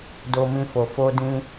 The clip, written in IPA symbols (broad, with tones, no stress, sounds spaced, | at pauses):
d o˧ m ĩ˧ f o˨ f o˧ d ĩ˧